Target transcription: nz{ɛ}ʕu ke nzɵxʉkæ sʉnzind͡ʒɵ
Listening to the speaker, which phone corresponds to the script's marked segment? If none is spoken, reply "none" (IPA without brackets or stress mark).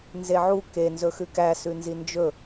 e